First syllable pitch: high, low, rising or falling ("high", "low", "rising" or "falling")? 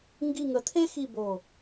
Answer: falling